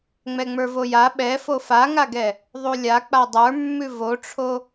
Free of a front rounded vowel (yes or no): yes